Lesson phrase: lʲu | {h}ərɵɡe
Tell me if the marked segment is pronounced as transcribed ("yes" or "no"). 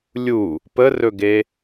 no